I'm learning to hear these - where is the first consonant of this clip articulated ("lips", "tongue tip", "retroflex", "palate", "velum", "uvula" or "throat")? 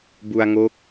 lips